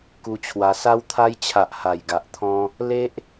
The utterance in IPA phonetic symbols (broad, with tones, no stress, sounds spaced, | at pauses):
k u˧ t͡ɕʰ w a˧ s a˧ w t̪ʰ a˧ j t͡ɕʰ a˨ ʔ h a˨˩ j ɡ a˨ ʔ t̪ʰ ɔ̃˧ | l e˦ ʔ